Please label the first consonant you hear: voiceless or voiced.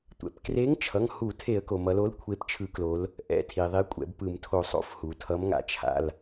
voiceless